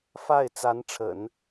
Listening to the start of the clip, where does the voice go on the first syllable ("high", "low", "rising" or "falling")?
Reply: falling